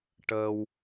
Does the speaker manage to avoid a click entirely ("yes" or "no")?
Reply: yes